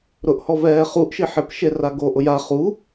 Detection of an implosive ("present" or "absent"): absent